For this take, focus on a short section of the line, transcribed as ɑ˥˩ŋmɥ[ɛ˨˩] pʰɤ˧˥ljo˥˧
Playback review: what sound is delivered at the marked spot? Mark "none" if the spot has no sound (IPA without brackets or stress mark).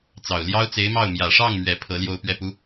ɛ˨˩